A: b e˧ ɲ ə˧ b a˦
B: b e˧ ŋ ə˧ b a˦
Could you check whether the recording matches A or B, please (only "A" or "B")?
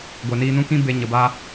A